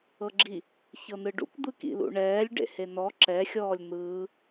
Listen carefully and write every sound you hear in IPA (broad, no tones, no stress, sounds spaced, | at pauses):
ɤ ɡ͡ǁ i | ç ɤ n ɯ ɖ ṵ k d̪ ɯ k ḭ l ṵ ɳ ɛː lʲ ɖ ḛ h e n ɔ ǁ ɛ xʲ ɔː lʲ n̪ ɯː